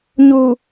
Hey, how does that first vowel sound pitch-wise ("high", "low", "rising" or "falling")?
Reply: low